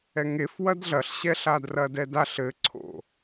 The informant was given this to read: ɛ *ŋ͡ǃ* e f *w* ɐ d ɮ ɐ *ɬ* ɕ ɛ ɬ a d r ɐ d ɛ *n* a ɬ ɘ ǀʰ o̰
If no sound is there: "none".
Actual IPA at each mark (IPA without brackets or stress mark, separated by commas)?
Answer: ŋ, w, ɬ, d